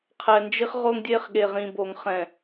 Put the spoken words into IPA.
qʰɛ˨nd͡ʒi˦χʁo˦ŋdʲe˦χ ɠe˨ʁĩ˨bo˨ŋ χɛ̃˨

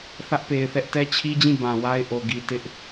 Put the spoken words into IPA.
θä˦ʔpe˨ɪ̯θɛ˦ʔ tɛ˦t͡ɕʰi˦d͡ʑĩ˦˨ bã˨wa˦ɪ̯ʔo˨ ɡi˨tɪ˦ʔ

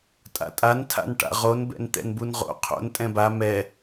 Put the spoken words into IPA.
tʼa̰tʼantʰa̰n ʈa̰ʁonbɛ̰n t̪ɛ̰nbunʁo̰ qʰo̰n tʼɛ̃ba mɛ

